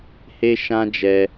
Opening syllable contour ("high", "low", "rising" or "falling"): high